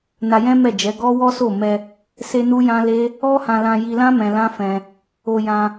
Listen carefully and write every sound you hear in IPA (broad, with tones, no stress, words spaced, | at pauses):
na˧jɛ̃˦mɛ˦˨d͡ʒɛ˨˦ ɡɔ˦wɔ˦ so˦˨ mɛ˧ | se˦nu˦jã˦ le˦ | ɔ˦hã˧lã˧ ji˧lã˦ mɛ̃˧lã˦fɛ̃˧ | o˧jã˧